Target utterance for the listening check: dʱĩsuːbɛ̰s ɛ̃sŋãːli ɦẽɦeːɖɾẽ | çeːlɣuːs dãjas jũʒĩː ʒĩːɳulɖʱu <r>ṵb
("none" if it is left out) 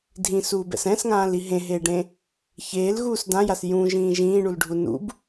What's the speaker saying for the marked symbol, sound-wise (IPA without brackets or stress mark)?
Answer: n